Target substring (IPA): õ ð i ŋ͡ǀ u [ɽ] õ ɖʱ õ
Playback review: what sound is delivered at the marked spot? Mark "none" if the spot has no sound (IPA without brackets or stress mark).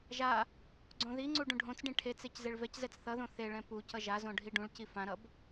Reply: ɖ